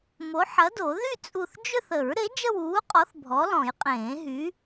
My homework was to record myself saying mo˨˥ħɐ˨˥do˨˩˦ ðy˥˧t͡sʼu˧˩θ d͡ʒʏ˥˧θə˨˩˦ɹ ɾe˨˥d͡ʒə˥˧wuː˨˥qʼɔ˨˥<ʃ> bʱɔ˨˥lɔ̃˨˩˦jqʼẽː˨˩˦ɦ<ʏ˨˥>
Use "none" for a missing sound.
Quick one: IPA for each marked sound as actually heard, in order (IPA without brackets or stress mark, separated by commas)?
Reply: θ, y˨˥